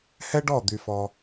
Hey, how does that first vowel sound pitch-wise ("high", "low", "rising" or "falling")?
high